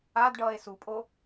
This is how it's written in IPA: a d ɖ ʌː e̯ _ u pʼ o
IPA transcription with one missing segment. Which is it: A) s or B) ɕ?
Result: A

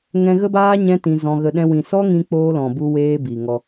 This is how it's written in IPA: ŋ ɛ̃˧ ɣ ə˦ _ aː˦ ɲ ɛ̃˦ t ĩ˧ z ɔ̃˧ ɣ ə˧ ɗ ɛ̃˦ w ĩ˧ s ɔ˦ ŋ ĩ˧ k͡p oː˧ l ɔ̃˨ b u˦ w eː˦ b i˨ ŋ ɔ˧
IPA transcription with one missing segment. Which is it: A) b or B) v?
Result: A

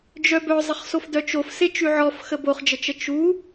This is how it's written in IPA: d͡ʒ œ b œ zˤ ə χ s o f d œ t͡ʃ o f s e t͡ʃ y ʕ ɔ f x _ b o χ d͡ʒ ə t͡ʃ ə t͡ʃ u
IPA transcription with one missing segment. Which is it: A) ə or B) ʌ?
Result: A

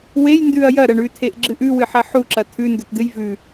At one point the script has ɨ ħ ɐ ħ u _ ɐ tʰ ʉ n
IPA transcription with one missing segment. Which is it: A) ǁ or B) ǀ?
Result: A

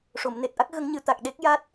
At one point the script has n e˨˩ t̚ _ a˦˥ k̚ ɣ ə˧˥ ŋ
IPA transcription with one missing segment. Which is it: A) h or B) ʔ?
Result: B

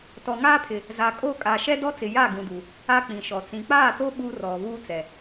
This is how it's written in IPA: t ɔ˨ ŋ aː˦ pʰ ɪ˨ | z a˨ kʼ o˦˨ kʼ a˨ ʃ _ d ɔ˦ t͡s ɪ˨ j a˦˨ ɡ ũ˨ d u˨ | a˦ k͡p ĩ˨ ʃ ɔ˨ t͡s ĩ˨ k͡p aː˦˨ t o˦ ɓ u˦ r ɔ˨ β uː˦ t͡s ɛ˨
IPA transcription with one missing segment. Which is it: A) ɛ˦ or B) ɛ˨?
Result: A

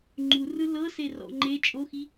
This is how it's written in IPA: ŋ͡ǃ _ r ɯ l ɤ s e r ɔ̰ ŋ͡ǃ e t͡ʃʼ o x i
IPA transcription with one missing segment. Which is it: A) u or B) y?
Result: A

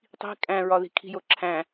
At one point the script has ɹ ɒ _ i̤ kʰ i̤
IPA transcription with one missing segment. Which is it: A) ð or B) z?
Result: A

